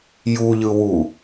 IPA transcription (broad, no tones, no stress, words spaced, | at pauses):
juʎɯwu